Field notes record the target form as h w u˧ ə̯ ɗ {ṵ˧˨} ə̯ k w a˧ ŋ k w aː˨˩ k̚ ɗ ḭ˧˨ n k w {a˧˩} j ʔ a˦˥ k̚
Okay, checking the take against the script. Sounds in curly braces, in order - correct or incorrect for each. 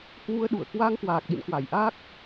correct, correct

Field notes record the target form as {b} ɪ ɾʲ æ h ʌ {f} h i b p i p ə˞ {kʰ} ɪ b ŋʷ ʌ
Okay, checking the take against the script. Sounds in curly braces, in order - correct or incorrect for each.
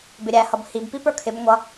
correct, incorrect, correct

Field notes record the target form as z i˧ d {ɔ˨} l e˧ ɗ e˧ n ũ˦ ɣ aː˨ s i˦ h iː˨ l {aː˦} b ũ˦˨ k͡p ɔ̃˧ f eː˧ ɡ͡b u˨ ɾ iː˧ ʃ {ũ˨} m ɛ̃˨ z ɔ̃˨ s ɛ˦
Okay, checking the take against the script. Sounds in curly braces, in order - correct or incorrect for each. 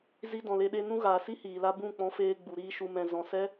incorrect, incorrect, incorrect

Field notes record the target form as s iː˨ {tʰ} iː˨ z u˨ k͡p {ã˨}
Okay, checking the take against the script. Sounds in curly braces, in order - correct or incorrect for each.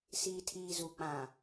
correct, correct

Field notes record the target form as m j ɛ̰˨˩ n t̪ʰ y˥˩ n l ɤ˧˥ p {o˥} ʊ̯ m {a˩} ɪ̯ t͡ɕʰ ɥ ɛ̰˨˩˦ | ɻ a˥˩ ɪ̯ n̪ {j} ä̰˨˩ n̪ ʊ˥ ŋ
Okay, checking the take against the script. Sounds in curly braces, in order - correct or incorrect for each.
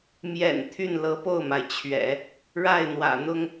incorrect, correct, incorrect

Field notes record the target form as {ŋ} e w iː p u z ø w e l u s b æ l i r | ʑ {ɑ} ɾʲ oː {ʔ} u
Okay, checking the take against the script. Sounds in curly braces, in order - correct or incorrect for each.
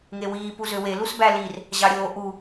correct, correct, correct

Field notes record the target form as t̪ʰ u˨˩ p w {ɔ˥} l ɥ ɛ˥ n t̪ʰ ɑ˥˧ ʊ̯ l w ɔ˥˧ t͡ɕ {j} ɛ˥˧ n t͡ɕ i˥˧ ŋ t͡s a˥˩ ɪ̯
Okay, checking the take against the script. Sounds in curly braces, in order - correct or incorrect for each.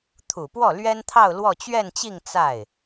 incorrect, incorrect

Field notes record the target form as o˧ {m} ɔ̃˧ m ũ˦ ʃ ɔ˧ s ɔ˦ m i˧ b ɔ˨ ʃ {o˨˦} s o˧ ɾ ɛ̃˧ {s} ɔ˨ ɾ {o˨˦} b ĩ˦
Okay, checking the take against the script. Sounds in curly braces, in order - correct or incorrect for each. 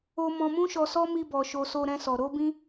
correct, incorrect, correct, correct

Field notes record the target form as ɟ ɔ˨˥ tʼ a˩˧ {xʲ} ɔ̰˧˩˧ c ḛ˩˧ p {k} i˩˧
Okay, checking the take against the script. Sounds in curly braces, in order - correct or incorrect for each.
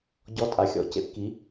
correct, correct

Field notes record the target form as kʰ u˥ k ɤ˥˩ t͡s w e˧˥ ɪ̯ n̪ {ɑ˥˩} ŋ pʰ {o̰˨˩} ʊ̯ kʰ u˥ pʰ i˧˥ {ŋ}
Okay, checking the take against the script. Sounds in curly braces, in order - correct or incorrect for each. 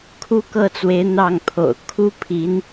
correct, correct, incorrect

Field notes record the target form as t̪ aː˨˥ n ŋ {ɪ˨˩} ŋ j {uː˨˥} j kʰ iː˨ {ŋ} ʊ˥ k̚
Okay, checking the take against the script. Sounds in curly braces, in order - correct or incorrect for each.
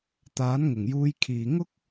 correct, incorrect, correct

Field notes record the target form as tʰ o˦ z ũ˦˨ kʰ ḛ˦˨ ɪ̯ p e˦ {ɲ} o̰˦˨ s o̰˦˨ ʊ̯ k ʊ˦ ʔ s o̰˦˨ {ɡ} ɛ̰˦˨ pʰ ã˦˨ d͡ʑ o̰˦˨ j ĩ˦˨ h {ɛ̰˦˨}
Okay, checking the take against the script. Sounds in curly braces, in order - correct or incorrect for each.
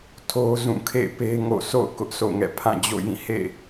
incorrect, incorrect, incorrect

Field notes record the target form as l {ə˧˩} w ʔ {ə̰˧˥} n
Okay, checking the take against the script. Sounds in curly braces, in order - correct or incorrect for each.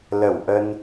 correct, incorrect

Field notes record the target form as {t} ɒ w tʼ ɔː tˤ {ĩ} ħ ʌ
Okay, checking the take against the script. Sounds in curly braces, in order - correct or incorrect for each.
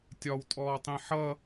incorrect, correct

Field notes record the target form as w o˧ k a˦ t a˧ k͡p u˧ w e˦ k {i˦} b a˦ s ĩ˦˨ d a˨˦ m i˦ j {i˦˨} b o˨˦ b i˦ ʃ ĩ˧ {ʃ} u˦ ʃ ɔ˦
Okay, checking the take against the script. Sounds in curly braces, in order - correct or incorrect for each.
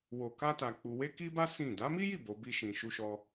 correct, correct, correct

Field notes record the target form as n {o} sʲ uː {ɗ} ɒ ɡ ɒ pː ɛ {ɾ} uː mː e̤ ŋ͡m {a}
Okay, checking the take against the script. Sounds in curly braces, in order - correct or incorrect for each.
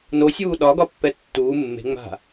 correct, correct, incorrect, incorrect

